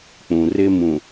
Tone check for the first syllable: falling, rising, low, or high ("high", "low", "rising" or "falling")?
low